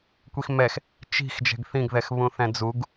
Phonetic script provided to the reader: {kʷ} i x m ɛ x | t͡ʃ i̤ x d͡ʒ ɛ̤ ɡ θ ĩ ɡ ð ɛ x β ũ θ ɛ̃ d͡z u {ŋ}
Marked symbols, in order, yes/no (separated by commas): yes, no